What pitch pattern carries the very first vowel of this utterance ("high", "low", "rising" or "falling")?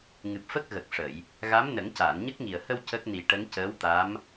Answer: low